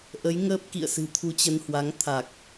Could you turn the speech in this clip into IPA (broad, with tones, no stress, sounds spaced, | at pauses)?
ʔ ə˨˦ j ŋ əː˦˥ p̚ k ḭ˧˨ ə̯ s ɨ̤˨˩ t̪ʰ u˧ t͡ɕ ə˧ n h w a˨˦ ŋ t̪ʰ a˨˩ k̚